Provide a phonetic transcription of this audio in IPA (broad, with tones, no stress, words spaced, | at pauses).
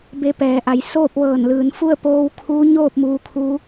be˧˥pɛː˩˧ʔa˩˧j soː˥˨p̚ʋɤː˧˩nlɯː˩˧nfu˥˨ə̯ poː˧˥wkʰuː˧˥ɲoː˥˨p̚ muː˧kʰu˧˥